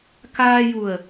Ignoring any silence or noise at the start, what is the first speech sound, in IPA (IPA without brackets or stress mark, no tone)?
k